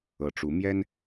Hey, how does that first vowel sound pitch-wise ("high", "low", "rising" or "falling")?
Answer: low